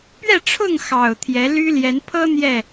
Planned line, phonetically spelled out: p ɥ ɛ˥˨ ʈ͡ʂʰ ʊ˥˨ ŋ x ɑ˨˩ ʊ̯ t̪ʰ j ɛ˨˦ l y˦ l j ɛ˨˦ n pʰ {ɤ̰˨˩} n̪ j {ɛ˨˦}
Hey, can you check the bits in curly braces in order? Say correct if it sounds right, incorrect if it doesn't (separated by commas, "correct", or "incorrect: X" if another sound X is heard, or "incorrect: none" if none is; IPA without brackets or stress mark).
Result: incorrect: ɤ˦, incorrect: ɛ˥˨